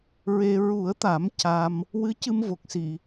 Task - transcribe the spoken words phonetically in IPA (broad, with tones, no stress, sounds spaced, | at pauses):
ɹ e˧ ɹ u˨˩˦ ə̯ t̪ a˨˩˦ m c a˧ m | w ɨ˧˥ c ɨ˧ m v o˨˩ k̚ s i˨˩˨